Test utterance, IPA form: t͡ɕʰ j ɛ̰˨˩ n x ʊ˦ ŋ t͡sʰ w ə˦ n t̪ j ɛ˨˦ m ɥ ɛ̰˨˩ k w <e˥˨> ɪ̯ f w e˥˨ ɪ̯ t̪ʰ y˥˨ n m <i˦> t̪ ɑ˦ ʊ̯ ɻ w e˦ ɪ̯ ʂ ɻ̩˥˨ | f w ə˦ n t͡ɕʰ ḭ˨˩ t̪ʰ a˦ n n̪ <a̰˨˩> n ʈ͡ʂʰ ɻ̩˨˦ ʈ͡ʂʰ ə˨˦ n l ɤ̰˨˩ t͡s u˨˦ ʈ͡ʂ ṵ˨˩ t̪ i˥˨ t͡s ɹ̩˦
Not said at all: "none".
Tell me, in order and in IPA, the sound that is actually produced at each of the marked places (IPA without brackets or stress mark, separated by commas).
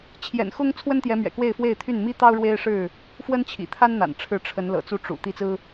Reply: e˥˨, i˦, a̰˨˩